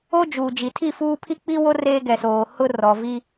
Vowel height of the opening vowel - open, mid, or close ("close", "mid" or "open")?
mid